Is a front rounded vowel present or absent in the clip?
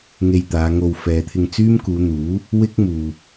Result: present